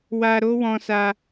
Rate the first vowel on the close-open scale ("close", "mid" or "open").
open